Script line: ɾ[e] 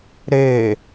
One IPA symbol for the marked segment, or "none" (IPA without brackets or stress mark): e